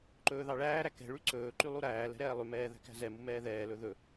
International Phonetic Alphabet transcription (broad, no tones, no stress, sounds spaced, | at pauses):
ǃ ɵː ð ɑ ɭ æː ɾ æ k ɛ̤ ɭ y ǀ ɵː ǃ y lˠ u ɾ æː l ɛ̤ ɾ ɛː lˠ ʉ m ɛː ð æ̤ k æ̤ z ɛ m u m ɛː ð ɛː l ɵ ð ɵ